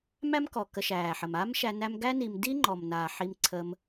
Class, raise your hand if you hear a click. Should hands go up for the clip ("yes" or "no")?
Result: yes